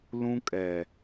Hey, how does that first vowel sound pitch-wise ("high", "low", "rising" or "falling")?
high